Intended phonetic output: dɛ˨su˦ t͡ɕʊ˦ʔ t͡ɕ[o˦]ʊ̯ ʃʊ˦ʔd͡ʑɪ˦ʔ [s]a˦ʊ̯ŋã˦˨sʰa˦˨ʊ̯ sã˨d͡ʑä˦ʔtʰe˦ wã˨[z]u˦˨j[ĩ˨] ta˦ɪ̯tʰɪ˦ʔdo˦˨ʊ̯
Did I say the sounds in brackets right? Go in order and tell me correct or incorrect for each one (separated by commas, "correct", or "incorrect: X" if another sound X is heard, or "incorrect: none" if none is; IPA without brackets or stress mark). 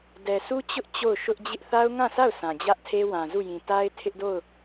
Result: incorrect: o˦˨, incorrect: θ, correct, correct